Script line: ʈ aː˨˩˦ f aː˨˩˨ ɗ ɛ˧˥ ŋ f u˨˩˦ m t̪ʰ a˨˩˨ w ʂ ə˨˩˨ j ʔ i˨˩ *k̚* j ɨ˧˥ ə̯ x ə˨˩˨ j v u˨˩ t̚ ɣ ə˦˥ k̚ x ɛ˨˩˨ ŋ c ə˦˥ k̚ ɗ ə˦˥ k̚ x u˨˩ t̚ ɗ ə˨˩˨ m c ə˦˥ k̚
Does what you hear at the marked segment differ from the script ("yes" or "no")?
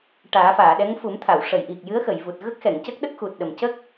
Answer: no